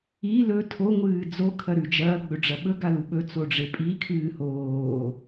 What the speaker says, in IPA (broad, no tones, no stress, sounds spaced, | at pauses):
i l ɵ tʰ o ŋʷ ɨː d͡z o kʰ ɐ ɾ ʉ d͡ʒ ɐː ɡ͡b ɵ ɖ͡ʐ ɐ ɓ ɵ ɡ a l u ɓ ɵ t͡s o ɖ͡ʐ e pʼ i kʰ ɨː h oː